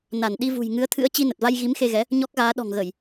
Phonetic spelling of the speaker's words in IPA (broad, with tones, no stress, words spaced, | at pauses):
na˧˩n ɗi˧vṳ˨˩jŋɨ˨˦ə̯t̪ʰɨ̰˧˥ə̯ t͡ɕi˧nə˨˩t̚va˧j ɣi˨˦mxe˧ɣɛ˨˦ | ɲɔ˦˥k̚ɣaː˨˦ ɗɔ̤˨˩ŋɣə˧˩˨j